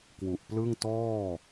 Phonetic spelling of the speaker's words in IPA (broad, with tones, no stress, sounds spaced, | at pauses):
k w u˨˩ ʔ p l ɯ˥˩ ŋ t ɔː˥˩